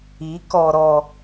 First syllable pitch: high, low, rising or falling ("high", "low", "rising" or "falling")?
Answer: rising